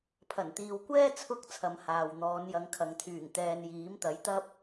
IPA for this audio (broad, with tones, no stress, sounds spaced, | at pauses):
pʰ ɐ˨˩ n t̪ iː˨ w kʷ ɛː˥ t͡sʰ ʊ˧ k̚ t͡sʰ ɐ˨˧ m h aː˨ w n̪ ɔː˨˧ n j ɐ˨˧ ŋ kʰ ɐ˨ ŋ t̪ʰ yː˨˩ ŋ t̪ ɛː˧ n j iː˨˥ m t̪ ɐ˨˥ j t̪ ɐ˥ p̚